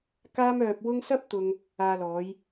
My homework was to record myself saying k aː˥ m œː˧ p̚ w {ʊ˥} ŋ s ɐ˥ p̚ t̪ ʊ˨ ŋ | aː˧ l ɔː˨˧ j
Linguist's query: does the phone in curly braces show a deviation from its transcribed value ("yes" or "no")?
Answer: no